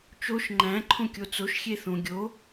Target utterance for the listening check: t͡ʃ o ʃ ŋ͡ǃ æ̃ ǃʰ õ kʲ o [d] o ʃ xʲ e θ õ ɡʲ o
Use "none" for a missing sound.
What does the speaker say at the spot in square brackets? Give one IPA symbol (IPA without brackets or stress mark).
t͡s